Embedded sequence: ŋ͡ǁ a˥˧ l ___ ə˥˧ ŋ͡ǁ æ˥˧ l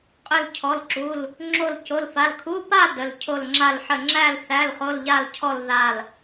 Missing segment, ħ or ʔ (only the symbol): ħ